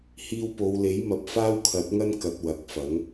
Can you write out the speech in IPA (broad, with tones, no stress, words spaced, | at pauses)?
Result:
hiː˧wpo˨˧wle˨˥j mɐ˨˥p̚faː˥wkʰɐ˨˥t̚ŋɐ˥n kɐ˨t̚ wɐ˨˥k̚fɐ˨˥ŋ